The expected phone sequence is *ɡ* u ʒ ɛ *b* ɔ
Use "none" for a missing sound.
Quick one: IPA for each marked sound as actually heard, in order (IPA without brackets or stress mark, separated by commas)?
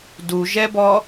d, b